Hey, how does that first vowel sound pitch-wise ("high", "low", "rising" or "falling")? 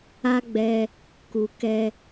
high